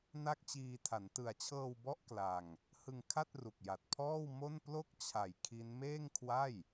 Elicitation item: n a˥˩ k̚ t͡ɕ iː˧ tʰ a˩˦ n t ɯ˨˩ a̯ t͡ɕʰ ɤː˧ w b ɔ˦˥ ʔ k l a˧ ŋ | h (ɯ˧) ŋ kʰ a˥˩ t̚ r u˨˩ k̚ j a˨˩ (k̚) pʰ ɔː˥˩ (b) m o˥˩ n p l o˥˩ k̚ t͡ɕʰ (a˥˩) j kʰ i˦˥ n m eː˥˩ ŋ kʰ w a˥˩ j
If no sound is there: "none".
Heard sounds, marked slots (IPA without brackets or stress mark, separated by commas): ɯ˧, t̚, w, a˨˩